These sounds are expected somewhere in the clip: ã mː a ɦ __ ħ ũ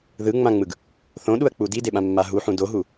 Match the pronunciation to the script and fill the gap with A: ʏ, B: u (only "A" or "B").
B